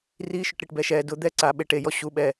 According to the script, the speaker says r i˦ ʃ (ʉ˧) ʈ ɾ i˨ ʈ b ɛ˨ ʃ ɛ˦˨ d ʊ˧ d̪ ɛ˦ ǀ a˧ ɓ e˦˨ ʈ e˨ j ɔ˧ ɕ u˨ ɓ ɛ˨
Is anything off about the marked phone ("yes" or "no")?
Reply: yes